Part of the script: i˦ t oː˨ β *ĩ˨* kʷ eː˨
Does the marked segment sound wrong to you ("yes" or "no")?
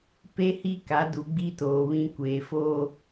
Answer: yes